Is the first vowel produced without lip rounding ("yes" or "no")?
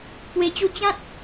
yes